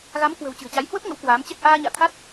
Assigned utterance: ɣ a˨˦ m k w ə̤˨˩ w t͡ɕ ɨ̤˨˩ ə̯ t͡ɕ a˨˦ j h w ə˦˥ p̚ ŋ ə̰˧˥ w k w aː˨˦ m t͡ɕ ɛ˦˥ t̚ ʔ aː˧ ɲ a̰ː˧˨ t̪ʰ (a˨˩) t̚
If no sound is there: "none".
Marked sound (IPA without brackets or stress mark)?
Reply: a˦˥